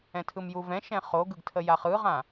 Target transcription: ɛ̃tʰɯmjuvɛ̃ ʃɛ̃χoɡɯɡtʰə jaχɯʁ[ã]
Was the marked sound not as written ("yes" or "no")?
no